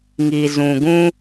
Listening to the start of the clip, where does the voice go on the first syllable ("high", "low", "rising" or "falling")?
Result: low